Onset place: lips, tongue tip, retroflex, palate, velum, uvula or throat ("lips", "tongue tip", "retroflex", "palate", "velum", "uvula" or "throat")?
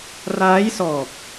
tongue tip